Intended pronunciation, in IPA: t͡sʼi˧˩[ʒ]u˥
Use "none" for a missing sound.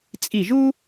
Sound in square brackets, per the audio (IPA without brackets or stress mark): ʒ